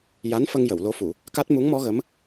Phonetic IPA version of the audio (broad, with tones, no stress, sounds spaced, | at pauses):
j a˧˥ n f ə˧ ŋ j ə˨˩˨ w l o˧˥ f u˨˩˨ | k a˦˥ t̚ m u˧˥ ŋ m ɔ˧˥ ɣ ə˧˥ m